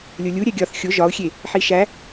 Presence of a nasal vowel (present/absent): absent